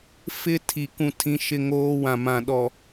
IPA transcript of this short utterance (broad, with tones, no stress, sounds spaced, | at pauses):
f ɪ˦ tʰ i˨ k ũ˦ tʰ ĩ˦ ʃ ɪ˦ ŋ oː˦ w ã˨ m ã˨ ɗ ɔ˨